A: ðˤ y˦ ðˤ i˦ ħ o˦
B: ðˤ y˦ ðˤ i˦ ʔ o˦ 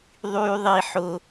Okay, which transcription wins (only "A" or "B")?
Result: A